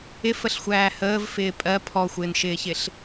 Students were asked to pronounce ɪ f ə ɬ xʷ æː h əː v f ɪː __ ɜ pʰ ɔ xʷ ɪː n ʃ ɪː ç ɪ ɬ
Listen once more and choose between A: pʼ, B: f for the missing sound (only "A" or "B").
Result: A